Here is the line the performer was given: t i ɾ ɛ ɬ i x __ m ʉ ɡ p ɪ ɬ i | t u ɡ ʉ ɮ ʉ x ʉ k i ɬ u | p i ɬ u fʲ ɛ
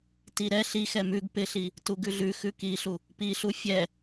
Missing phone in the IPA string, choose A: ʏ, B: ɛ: B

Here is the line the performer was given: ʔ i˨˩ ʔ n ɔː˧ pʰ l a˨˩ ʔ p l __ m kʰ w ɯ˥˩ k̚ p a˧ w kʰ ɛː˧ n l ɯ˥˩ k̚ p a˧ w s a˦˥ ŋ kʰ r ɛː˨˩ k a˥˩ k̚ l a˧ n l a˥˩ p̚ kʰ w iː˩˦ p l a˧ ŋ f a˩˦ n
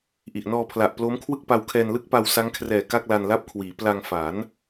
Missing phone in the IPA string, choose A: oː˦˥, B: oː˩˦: A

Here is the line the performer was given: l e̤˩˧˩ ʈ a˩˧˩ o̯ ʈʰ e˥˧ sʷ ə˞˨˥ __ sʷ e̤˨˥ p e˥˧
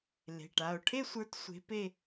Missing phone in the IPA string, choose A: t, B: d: A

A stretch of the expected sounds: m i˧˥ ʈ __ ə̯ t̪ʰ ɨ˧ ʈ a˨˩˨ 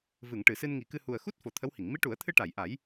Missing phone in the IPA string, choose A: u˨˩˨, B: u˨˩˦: B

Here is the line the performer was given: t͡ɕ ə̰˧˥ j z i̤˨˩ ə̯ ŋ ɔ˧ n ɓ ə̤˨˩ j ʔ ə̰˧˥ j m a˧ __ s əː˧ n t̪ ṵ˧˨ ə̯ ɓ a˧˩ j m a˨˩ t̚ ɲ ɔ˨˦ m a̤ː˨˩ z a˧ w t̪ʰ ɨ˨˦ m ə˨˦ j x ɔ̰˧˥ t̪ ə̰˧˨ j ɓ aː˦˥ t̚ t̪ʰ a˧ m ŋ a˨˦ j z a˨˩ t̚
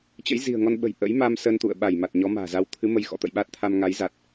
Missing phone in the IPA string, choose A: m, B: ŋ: A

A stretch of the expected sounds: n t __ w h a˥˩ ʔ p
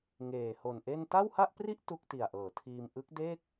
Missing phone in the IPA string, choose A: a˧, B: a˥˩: B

